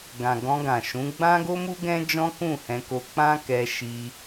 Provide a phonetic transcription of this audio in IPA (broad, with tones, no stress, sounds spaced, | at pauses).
ɡ ã˨ ɡ ɔ̃˧ ɡ ã˨ ʃ ũ˨˦ ɡ͡b ã˦ ɡ o˦ m u˦ ɡ ɛ̃˦ d͡ʒ ɔ̃˦ k ũ˦˨ h ɛ̃˧ k o˧ k͡p ã˦ k ɛ˧ ʃ i˧